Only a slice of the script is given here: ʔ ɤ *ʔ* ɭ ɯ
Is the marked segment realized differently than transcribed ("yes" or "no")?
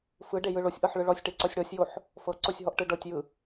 yes